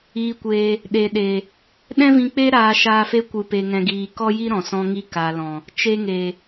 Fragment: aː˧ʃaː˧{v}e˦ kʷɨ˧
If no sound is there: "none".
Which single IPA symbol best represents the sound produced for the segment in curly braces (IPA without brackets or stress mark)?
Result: f